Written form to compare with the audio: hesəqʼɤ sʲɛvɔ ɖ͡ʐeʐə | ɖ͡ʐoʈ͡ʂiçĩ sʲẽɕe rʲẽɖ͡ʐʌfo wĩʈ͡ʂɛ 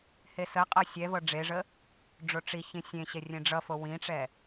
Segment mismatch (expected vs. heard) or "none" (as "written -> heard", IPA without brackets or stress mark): ɔ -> ɤ